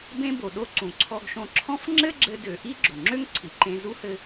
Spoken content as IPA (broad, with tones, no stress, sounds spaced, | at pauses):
b ẽ˧ b o˩ ɗ o˧ ǀ ũ˩ ǀʰ ɔ˧ ɡ ʃ õ˧ ǁʰ ɔ̃˥ f ŋ͡ǁ ɘ˥ ɡ͡ǁ ɘ˧ d ø˩ ʔ i˥ ɡ͡ǁ o˩ ŋ͡ǁ ø˥ ŋ ǀʰ i˩ ǃ ẽ˧ z u˥ h ɘ˧